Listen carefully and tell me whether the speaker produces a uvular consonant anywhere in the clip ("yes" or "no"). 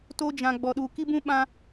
no